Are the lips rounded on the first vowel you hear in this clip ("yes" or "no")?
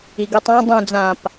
no